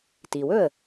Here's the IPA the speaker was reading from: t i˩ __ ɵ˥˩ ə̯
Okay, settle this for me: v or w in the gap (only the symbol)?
w